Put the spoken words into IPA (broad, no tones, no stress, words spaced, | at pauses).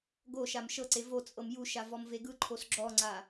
ɡoʃam ʃɤǀe vot͡sʼɤm juʃa vɔmveɡɯǃʰos ɡ͡ǁɔŋ͡ǀa